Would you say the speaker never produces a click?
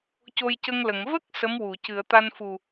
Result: yes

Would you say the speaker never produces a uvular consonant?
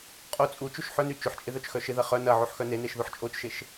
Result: no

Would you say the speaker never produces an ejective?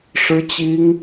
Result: yes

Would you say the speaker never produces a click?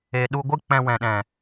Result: yes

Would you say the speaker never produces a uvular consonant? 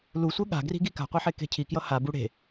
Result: no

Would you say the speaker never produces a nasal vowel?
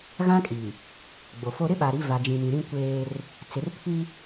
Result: no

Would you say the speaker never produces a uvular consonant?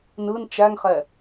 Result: no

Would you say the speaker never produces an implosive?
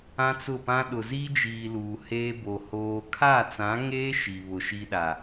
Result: no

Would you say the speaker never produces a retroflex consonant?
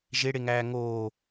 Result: no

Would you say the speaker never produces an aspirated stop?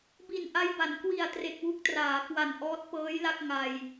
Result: yes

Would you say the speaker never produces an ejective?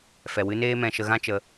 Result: yes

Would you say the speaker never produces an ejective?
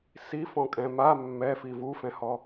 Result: no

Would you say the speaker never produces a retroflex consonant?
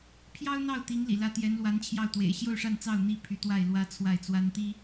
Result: no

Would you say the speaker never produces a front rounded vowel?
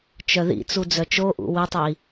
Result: no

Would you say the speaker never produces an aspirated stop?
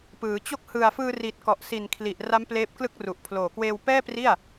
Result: no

